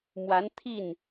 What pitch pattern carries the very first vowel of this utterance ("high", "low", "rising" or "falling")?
rising